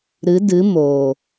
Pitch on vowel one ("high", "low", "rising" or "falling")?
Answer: rising